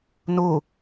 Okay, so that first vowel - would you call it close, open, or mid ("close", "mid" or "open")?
close